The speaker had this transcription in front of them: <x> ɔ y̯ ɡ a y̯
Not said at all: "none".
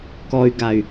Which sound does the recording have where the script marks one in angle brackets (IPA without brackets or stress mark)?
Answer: k